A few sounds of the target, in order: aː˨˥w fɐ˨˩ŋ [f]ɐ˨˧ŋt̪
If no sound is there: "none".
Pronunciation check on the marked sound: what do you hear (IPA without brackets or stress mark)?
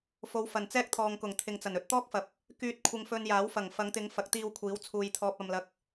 f